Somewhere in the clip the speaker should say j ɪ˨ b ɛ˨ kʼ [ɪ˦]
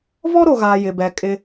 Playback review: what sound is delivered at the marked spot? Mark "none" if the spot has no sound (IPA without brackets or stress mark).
ɪ˦